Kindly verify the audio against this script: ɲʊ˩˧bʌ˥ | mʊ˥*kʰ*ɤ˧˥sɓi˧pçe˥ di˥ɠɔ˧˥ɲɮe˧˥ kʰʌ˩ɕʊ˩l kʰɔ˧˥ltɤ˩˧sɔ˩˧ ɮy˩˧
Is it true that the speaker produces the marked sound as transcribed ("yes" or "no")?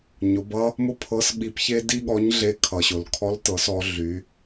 no